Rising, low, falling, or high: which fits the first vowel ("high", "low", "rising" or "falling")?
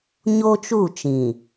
high